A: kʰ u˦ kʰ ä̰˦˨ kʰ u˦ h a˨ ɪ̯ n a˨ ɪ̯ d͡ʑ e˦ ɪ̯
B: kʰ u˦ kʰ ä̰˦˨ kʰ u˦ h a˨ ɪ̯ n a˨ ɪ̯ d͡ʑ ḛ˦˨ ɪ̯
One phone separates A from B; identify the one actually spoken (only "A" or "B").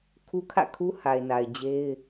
A